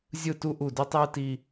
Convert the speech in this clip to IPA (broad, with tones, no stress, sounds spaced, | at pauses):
zʲ ɯ˦˨ t u˦ ʔ u˦˨ d ʉ˦ tˤ ɯː˦ t iː˦